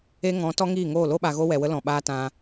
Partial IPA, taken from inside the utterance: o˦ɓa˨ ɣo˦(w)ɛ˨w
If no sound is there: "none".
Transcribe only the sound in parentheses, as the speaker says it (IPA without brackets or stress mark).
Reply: w